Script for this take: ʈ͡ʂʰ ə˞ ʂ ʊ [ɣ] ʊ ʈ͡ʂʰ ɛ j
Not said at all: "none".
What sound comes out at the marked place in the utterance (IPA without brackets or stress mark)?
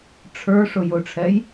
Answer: j